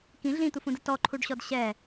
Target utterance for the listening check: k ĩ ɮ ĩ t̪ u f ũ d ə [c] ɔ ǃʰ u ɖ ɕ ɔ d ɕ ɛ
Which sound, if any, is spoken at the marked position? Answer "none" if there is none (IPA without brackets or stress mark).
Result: t